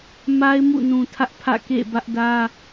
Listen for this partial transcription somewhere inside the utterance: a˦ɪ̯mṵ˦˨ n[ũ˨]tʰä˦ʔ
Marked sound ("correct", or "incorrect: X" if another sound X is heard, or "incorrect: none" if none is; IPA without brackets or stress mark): correct